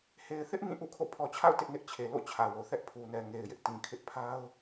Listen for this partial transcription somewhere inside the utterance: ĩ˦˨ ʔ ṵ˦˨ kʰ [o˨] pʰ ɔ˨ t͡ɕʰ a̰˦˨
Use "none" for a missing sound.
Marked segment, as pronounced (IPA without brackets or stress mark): o̰˦˨